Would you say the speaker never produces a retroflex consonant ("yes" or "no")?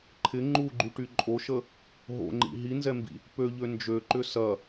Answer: no